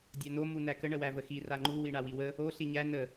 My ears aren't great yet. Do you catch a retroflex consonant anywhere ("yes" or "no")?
yes